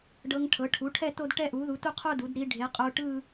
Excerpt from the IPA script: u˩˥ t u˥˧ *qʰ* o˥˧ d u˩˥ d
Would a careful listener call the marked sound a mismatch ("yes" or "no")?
no